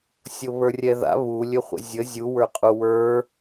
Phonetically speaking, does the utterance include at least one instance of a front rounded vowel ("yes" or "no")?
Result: yes